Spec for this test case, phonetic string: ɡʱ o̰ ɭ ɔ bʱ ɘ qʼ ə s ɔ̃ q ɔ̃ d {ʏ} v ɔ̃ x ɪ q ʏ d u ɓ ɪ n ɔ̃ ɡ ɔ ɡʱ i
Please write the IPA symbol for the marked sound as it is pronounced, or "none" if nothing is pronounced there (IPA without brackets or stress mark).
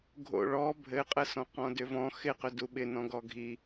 ʏ